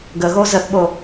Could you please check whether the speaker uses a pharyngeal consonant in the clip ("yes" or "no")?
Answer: no